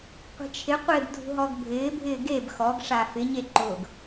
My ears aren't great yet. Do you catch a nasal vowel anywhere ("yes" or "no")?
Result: no